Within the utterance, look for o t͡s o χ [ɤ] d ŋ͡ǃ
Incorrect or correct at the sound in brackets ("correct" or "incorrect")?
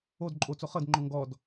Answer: correct